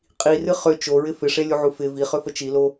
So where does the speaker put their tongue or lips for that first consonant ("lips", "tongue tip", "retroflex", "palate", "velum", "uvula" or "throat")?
uvula